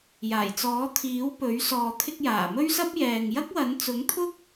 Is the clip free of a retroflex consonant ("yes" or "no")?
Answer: yes